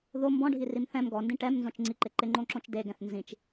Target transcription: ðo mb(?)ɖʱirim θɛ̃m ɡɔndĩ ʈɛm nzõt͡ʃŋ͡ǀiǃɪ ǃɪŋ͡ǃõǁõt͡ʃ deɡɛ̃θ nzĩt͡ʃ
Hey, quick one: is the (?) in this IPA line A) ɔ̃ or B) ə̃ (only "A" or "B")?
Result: A